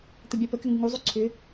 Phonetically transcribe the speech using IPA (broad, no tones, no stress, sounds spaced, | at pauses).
t̪ ə bʲ a p ə k ʏ ŋ u ŋ u zˤ u ǀʰ ʏ